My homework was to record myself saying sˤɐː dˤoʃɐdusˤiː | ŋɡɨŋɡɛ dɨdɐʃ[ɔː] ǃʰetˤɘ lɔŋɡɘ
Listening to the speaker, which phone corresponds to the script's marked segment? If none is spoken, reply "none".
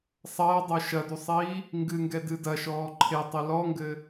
ɔː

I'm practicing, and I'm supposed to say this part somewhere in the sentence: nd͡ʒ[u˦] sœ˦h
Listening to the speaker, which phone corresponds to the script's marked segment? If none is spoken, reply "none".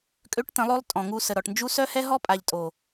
u˦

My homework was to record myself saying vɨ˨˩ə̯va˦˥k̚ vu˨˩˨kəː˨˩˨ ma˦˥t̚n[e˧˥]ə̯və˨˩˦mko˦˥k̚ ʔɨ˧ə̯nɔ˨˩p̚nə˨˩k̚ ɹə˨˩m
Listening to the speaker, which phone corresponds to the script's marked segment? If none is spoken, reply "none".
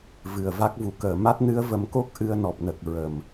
ɨ˧˥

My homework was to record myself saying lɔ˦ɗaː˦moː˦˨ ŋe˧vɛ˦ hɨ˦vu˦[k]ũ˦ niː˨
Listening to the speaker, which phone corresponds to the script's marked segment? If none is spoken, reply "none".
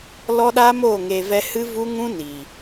ŋ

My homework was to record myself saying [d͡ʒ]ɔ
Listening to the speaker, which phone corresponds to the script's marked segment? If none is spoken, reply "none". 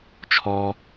t͡ʃʰ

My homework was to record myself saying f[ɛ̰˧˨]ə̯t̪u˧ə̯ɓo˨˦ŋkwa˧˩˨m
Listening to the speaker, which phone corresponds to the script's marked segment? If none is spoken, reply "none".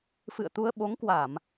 ɨ̰˧˨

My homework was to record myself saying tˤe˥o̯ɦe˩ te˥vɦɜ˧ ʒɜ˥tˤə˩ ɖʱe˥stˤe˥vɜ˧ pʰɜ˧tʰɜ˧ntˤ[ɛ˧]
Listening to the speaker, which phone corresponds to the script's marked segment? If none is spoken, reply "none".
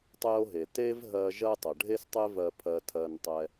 ɛ˧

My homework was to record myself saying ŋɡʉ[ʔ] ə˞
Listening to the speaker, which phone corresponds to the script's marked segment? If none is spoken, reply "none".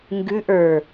ʔ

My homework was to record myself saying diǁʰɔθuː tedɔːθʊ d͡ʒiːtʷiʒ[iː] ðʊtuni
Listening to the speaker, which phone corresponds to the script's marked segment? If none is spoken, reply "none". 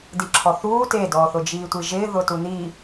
ɪː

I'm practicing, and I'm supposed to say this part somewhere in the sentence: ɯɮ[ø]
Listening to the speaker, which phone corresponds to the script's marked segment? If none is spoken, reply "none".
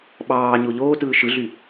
y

